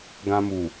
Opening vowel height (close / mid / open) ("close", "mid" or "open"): open